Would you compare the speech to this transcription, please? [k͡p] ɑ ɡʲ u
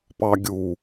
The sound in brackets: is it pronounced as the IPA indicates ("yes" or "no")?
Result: no